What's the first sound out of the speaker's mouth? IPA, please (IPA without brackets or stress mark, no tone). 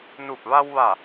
n